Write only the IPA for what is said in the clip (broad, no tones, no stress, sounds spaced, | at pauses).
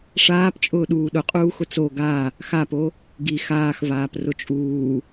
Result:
ʂ aː p t͡ʃʼ ʊː ɗ uː ɗ ʊ qʼ uː x ʊ t͡s o ɡ a | x a p o | ɡ i x aː x v aː p r ʊ t͡ʃʼ uː